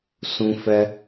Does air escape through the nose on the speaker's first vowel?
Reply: yes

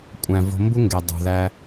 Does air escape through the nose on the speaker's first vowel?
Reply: yes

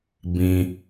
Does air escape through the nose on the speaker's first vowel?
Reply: yes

